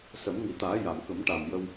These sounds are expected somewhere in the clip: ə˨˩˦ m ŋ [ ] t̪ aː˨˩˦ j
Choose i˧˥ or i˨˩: i˨˩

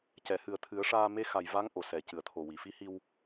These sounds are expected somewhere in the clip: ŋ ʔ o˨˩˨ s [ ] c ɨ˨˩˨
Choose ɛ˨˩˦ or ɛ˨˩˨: ɛ˨˩˨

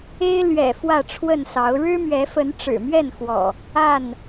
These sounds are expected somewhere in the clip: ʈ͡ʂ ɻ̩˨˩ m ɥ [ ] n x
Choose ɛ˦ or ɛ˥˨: ɛ˥˨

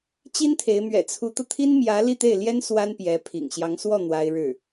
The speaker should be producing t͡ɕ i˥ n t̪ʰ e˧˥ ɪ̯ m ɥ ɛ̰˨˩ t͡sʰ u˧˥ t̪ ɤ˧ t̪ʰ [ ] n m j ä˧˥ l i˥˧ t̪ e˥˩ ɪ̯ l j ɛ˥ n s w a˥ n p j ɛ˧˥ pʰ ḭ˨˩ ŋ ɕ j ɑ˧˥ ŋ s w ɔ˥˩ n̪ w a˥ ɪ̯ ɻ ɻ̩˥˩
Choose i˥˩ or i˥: i˥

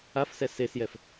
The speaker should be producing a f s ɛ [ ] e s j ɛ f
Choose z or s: s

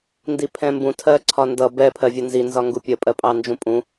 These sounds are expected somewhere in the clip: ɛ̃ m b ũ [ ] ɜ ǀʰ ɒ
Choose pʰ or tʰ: tʰ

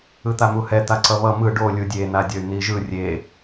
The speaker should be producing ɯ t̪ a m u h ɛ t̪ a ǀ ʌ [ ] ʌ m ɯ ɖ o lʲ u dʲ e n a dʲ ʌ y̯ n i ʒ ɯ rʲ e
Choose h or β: β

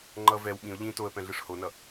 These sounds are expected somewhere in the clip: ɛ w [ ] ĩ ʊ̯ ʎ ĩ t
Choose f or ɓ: ɓ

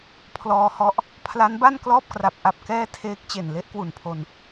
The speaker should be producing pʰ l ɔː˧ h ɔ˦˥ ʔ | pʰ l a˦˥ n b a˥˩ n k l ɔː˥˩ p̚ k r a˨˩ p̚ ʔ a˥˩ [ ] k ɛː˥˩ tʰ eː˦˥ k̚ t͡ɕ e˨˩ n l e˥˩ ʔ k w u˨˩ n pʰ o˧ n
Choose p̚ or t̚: p̚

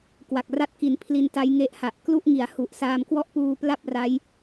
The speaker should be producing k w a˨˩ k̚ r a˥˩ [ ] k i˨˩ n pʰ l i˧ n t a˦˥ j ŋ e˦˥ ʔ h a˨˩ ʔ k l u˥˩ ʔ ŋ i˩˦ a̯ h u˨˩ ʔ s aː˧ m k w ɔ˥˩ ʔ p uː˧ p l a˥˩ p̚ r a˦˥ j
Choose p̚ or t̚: t̚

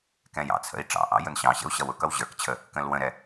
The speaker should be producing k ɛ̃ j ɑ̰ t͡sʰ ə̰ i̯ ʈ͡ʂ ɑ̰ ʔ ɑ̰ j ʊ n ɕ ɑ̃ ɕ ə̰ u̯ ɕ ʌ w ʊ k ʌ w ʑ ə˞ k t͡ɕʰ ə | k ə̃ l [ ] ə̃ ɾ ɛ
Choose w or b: w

